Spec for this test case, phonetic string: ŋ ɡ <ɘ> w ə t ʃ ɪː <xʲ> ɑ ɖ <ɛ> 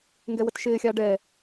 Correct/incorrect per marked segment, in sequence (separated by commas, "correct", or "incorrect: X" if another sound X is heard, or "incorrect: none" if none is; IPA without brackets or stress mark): incorrect: ɛ, correct, correct